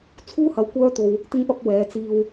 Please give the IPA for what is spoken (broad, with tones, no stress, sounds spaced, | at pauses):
t͡sʰ uː˥ h ɐ˨˧ w kʷ œː˥ t̪ o˧ w | t̪ ɪ˥ ŋ p ɐ˥ p̚ w ɛː˨˧ t͡s iː˧ w